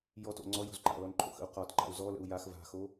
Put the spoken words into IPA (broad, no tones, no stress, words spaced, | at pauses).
jɔto̰ ŋ͡ǀɔjo̤z ǃa̰lɔnǃʰo̰xə̰u̯ qɒtǃa̰u̯ zɔlə̰u̯ jax va̤xo